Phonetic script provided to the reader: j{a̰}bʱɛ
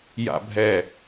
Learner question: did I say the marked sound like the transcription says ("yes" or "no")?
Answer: yes